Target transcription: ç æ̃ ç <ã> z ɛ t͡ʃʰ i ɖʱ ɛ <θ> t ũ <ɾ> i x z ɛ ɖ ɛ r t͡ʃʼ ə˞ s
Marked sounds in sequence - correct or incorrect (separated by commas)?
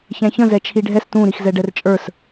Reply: incorrect, incorrect, correct